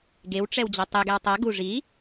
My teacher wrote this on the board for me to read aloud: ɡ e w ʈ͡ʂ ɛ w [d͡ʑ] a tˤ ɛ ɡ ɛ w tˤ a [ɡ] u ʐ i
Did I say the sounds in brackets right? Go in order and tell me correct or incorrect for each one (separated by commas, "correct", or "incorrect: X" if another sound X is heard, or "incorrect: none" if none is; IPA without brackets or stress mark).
correct, correct